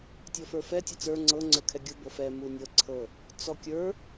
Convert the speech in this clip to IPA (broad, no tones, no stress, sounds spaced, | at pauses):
tʲ ɔ f ə˞ f ɛ tʲ ɤ t͡s ə˞ ŋ͡ǀ ɤ ŋ͡ǀ ə˞ kʰ ɛ ɡʲ u b ɤ f ɛ m u nʲ ɤ ǀʰ ɤ | t͡s ɔ kʲ ə˞